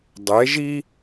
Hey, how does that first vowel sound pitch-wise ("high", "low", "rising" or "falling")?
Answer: rising